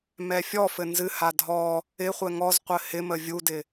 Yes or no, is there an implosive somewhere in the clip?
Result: no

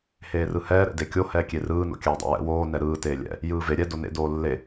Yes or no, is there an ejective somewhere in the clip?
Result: no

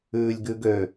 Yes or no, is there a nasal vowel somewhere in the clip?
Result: no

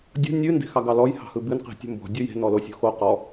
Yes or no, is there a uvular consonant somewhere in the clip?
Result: yes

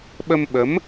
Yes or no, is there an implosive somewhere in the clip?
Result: yes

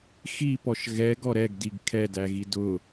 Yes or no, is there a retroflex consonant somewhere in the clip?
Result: no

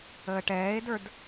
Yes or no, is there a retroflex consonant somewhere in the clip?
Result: yes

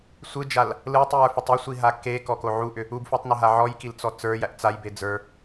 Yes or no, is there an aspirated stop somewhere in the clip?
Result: no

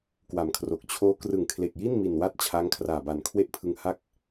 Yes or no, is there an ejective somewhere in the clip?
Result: no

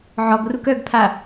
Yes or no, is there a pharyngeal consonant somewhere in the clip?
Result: yes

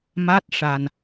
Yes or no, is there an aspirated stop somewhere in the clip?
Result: no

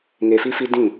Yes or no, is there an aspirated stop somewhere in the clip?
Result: no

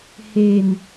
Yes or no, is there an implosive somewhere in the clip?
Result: no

